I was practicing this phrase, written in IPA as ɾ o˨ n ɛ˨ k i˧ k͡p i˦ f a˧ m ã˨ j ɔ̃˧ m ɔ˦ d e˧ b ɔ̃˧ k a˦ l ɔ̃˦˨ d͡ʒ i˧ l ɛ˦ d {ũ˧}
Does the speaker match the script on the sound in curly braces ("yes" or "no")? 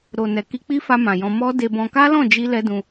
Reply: yes